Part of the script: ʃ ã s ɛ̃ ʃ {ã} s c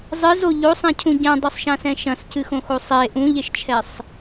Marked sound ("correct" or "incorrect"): incorrect